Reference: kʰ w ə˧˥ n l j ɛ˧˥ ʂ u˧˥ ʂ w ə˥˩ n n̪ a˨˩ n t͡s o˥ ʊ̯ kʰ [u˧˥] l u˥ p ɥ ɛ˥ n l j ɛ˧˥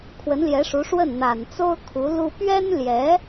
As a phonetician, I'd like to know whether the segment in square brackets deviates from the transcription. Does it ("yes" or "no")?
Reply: no